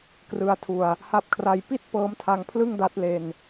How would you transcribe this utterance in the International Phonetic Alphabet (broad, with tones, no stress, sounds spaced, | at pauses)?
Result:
k r ɯ˧ a̯ tʰ u˧ a̯ | h a˦˥ p̚ kʰ r a˧ j p i˥˩ t̚ p ɤː˦˥ m tʰ a˧ ŋ pʰ l ɯ˥˩ ŋ d a˦˥ t̚ l e˧ n